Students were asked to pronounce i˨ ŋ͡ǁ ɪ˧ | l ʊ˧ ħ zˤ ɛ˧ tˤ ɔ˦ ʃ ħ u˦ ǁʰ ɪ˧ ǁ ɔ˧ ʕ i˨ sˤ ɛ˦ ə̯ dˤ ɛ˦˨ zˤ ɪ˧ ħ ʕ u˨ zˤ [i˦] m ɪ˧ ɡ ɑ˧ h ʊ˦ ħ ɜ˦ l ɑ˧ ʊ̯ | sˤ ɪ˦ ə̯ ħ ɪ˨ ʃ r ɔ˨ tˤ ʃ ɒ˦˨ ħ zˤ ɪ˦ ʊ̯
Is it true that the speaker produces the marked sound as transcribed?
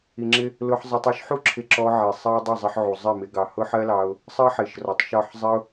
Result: no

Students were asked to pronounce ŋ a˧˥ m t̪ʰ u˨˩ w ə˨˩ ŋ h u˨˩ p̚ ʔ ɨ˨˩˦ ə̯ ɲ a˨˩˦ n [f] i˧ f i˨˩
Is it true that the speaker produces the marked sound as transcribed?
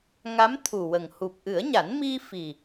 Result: no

